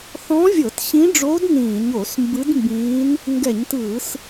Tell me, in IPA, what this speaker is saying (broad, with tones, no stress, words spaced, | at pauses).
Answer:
θɔ̃˧˥vʲɤ˧˩˧t ɕĩ˧˥ɖ͡ʐoː˧˥d nĩː˧˩˧ɲo˧˩˧smbɯ˧˥dmbĩː˧˥n | ŋɡɛ˧˩˧ɲtɯː˧˩˧s